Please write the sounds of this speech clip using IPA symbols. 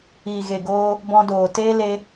iː˨ɣe˨ɡoː˧ | bɔ̃˧doː˨teː˦ le˧

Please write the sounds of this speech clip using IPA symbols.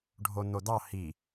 ɖʱon̪od̪ɑ hi

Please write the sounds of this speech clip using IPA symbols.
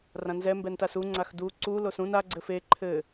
rãnzɛ mbɛntasu ŋ͡ǀaxdu ǀu losũn a ɡ͡ǀɘfe ǃʰɘ

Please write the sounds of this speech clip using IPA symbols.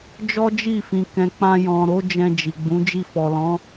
d͡ʒɔ˦d͡ʒi˦˨fĩ˨ kɛ̃˨k͡pã˧ jɔ̃˨ɾo˨˦ d͡ʒɛ̃˧d͡ʒi˨ɡ͡bũ˨˦ d͡ʒi˧fɔ˨lɔ̃˨˦

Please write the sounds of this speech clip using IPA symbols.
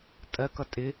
tʼɜkʌ tʼɪ

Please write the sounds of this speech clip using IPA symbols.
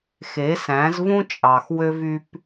xe˨˦sæ̃˨˦zvũ˦ t͡ʃʼɑ˨xwø˦vy˦p

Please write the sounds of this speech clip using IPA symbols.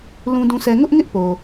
lũ˦dũ˦sʰɛ˦ ŋʊ˦ʔŋɪ˦ʔ po˨

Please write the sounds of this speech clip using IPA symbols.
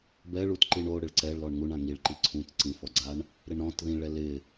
bɛɭut ǃiɳo ɽɪɭǀɛɭlɔɳ ŋuɳã ŋiɭ ǃiǀʰũt ǀĩfɔɡ͡ǀaɳ | ɾɪɳɾɔ̃t ðĩɭɛ lɪ

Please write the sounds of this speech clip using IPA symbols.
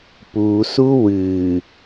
pusu wɨ

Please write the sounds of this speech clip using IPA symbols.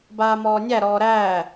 baːmɔːnʲæ ɾɔːɾæː

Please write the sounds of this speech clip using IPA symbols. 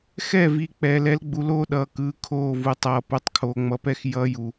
xɛ˦˨vi˨ k͡pɛː˨lɛ˨˦lɡ͡bu˨loː˦ ɗʌː˨kɯː˨ kʰoː˦˨ vu˨tˤʌː˨pu˨tˤ kʰoː˨ŋ͡mʌ˨pɛ˦x jʌː˦ju˨

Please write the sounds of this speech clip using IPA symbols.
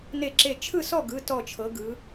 ne˧˩ǁe˧˩ t͡ʃʰɯ˥˨sɔ˥˨ɡɯ˩˧˩ tɔ˧˩t͡ʃʰɤ˩˧ ɡɯ˩˧

